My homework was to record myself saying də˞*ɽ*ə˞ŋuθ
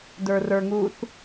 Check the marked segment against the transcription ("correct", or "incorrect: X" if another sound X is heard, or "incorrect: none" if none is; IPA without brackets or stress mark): incorrect: r